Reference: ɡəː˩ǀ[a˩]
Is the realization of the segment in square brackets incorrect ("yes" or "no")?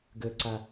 no